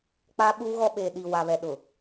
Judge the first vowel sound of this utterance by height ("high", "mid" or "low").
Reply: low